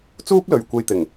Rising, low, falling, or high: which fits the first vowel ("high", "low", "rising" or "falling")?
high